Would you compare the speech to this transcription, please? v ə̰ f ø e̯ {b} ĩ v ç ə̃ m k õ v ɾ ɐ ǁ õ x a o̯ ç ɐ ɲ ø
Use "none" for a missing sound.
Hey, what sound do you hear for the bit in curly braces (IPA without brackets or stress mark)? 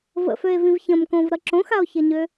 v